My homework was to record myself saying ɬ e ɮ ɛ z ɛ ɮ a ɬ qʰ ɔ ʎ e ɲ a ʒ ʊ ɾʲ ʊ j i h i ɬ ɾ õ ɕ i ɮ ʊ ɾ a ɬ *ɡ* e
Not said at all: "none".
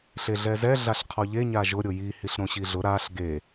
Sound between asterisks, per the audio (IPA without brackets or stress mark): ɡ